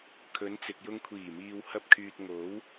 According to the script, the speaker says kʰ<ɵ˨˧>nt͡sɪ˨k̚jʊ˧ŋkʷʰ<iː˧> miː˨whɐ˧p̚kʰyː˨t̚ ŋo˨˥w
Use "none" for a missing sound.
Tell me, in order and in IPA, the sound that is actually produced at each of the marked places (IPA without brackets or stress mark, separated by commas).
ɵ˨˧, iː˨˩